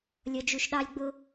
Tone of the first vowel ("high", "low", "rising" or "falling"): low